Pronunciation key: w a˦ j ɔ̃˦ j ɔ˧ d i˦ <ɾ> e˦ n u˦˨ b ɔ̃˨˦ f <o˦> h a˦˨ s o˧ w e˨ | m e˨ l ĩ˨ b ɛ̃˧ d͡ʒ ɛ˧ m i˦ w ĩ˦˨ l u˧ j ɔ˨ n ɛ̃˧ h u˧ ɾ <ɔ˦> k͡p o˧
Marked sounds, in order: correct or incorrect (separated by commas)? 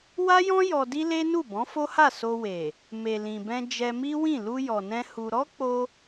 incorrect, correct, correct